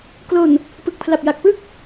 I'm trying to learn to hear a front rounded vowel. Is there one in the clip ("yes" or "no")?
no